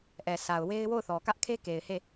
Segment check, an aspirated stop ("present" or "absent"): present